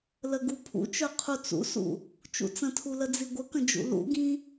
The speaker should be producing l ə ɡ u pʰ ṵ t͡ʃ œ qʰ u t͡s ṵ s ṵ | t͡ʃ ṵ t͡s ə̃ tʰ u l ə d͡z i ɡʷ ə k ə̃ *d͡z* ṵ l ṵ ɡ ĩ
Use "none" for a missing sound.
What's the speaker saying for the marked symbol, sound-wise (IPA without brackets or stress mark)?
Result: d͡ʒ